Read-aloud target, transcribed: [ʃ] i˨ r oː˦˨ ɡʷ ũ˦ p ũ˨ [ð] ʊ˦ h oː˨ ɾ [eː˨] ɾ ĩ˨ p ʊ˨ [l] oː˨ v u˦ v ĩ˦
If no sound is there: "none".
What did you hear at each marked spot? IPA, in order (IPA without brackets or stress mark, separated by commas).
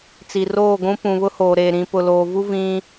t͡s, β, eː˨, l